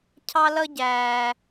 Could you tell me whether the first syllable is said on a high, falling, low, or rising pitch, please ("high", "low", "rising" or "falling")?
high